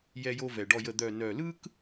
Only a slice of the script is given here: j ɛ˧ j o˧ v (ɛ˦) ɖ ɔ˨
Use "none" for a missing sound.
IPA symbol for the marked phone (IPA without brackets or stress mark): ɛ˨